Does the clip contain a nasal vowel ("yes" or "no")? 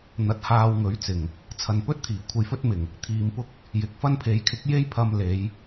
no